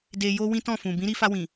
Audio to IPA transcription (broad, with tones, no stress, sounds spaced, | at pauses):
d e˧ j o˦ w ĩ˦ t ɔ̃˦˨ f ũ˨ b ĩ˨˦ ɾ i˧ f a˧ w ĩ˨